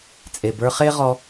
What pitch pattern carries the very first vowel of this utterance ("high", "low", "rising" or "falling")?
low